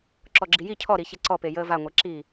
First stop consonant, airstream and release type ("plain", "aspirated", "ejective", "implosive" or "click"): click